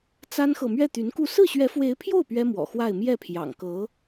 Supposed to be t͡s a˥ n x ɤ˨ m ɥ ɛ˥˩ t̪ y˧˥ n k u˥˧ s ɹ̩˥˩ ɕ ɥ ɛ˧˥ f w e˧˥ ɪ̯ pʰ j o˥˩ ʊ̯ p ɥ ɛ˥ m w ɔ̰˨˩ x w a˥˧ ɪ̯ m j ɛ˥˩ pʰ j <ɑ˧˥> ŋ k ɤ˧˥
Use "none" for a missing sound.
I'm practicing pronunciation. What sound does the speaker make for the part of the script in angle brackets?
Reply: ɑ̰˨˩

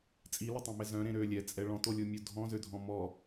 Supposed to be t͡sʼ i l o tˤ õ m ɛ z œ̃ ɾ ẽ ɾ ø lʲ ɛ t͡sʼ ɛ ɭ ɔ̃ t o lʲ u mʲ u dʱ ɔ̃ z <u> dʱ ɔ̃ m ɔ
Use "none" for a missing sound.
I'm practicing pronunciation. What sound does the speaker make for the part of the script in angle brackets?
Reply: ø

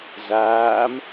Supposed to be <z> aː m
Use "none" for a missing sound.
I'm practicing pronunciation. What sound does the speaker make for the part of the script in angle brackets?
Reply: z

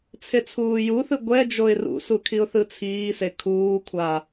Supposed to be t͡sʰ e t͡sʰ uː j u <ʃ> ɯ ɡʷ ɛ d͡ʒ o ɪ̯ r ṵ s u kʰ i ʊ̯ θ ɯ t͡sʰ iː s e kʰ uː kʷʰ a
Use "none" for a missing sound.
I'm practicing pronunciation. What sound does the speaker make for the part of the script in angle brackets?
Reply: θ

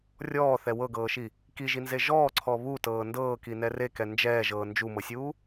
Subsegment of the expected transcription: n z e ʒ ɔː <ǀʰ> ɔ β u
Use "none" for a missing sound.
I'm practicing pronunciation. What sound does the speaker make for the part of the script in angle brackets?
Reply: ǀʰ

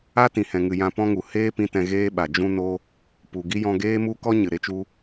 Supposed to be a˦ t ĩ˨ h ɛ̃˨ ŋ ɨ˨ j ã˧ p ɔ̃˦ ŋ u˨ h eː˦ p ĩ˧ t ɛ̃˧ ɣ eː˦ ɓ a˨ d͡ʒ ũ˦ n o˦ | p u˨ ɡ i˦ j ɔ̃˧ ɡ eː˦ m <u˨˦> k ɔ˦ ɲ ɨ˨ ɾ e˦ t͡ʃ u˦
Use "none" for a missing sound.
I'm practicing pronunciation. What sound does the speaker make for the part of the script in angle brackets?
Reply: u˦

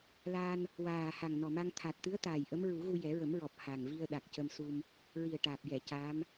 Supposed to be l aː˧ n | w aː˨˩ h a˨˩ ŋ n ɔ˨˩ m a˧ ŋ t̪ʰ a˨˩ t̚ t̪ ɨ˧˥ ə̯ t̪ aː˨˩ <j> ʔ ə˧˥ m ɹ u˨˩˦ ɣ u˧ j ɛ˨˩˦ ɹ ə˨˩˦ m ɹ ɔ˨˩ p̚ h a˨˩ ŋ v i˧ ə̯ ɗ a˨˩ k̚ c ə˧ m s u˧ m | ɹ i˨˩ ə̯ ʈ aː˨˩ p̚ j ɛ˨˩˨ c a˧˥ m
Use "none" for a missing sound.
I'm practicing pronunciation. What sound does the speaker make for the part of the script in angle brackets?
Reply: j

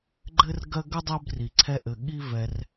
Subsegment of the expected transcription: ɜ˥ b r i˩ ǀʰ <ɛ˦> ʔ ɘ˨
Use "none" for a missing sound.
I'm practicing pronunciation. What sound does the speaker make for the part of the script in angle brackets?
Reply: ɛ˦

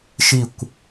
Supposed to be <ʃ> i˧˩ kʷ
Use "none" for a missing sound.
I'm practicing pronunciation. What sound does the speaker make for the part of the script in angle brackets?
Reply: ʃ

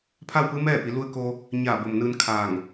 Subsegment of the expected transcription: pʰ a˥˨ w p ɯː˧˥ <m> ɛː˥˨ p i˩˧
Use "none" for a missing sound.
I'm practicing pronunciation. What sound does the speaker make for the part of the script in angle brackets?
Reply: m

